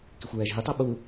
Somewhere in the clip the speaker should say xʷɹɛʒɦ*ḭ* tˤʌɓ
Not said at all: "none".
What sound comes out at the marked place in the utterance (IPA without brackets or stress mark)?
i